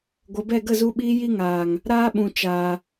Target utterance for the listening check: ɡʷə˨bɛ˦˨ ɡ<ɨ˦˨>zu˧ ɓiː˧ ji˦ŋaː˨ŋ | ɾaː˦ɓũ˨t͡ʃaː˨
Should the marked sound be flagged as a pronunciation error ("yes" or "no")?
yes